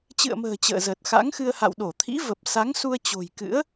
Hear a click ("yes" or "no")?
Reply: no